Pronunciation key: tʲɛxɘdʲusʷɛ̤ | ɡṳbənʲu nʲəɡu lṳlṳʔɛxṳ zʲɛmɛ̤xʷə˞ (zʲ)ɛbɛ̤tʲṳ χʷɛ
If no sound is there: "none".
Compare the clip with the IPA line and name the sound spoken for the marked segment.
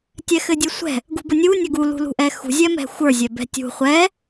zʲ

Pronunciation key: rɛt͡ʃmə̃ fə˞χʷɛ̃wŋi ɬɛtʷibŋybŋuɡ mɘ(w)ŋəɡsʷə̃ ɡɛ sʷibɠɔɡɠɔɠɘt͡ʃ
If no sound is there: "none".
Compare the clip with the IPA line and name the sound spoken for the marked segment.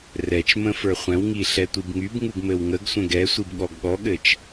w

